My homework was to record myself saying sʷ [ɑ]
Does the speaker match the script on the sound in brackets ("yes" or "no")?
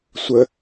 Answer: no